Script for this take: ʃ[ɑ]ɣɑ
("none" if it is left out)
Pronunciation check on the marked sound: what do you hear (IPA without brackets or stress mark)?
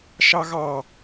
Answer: ɑ